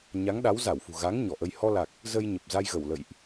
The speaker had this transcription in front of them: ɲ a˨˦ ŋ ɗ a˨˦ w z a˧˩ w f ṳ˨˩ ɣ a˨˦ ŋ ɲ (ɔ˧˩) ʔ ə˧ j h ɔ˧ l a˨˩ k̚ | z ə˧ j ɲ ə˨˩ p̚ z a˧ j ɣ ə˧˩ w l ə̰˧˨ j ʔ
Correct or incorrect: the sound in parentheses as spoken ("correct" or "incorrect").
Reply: correct